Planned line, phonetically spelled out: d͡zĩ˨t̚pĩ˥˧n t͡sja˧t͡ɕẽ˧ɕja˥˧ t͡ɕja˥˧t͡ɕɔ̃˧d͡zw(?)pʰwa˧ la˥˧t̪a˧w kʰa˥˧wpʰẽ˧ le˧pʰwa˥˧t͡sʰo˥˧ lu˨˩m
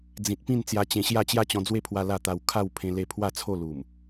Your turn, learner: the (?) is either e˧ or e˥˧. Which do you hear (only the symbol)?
e˥˧